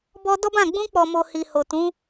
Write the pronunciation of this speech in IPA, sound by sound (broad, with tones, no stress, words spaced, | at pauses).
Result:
bɔ˧ dɔ˦bã˦˨ ɡ͡bũ˧k͡pɔ˨mo˨ hi˨ho˨ tũ˨˦